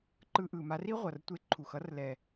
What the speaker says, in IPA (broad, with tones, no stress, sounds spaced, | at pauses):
ǃ ɯ˧ ʔ ɯ˨ m a˧ r i˦ ʁʷ ʌ˨ r tʷ e˧ ǃʰ u˨ x ʌ˦ r l ɛ˨